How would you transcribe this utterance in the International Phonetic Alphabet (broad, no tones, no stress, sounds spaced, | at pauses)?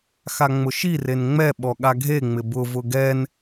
x a ŋ͡m ʊ ʃ i r e n ŋ͡m ɛ ɓ ɔ ɠ a ɡʱ e ŋ͡m ɪ b ʊ v ʊ ɡ ɛ n